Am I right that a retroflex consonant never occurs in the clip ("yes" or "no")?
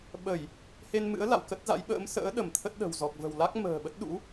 yes